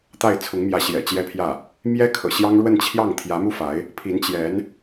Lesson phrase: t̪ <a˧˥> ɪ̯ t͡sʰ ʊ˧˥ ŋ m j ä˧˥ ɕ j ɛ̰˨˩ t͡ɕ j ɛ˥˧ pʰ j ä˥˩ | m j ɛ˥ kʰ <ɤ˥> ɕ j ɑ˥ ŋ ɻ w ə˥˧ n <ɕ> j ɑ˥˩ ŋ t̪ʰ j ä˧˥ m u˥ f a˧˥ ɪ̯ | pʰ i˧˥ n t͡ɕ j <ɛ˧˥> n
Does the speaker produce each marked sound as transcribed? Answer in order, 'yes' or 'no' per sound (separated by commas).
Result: no, no, no, yes